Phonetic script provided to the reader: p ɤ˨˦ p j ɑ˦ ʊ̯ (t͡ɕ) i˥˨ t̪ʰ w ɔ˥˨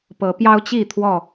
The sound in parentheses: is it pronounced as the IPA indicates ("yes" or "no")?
yes